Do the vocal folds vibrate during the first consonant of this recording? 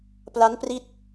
no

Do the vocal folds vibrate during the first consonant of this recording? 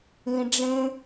yes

